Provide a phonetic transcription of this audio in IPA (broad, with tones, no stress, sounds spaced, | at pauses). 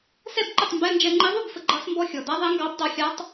s ɛ˥˨ b ǃ ə˥˨ tˤ m b ɛ˧˥˧ n d͡ʒ ɛ˧ ŋ͡ǃ i˧˥ ðˤ u˥˨ b f ə˧ ɡ͡ǃ ɑ˧˥ s m b ɔ˥˨ xʲ ɔ˨˩ d a˧˥ ðˤ ɛ˧˥ ŋ ɡ ɑ˧˥ b d ɑ˧ xʲ a˧˥ tˤ